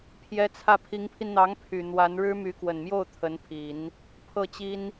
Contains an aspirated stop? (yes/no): yes